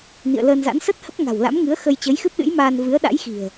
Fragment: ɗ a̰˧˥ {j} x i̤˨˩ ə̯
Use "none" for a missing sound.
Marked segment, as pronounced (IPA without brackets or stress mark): j